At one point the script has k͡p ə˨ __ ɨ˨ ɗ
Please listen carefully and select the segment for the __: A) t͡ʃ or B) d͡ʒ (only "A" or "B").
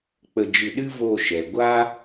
B